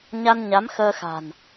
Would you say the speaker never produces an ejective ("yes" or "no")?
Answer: yes